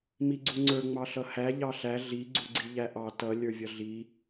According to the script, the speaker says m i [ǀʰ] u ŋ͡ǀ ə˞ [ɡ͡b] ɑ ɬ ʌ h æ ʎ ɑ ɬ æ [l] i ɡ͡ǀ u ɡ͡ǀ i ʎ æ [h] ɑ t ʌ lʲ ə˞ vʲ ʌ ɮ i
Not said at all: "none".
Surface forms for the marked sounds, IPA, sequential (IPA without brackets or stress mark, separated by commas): ɡ͡ǀ, ŋ͡m, ɮ, ʔ